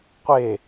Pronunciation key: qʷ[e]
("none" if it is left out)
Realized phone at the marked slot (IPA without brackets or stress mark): e